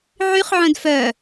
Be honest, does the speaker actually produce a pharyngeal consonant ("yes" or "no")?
yes